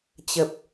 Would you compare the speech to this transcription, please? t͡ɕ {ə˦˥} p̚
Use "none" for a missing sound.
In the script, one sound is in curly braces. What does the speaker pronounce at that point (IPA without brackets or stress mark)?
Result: ə˨˩